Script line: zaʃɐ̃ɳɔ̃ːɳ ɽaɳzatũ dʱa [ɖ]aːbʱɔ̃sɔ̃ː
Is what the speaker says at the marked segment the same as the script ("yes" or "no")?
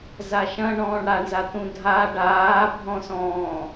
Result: yes